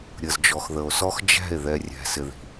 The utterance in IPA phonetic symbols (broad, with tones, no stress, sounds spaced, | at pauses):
ɾʲ ə˨ z d͡ʒ ɔ˨ x ð ə˨ o̯ s ɔ˦ x d͡ʒ æ̤˦˨ e̯ ð ɛ˨ rʲ æ̤˨ s ɪ˨ ð i̤˨